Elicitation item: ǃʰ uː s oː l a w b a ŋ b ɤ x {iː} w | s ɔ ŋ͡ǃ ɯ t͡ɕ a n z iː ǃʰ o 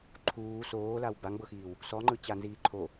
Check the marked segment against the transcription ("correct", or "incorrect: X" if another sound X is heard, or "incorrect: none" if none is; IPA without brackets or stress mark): correct